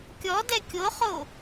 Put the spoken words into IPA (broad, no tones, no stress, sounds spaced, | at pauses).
kʲ ɔ d ɛ kʲ o χ o